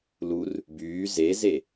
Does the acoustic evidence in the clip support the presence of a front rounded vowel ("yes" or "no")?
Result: yes